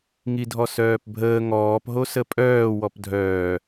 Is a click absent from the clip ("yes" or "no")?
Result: yes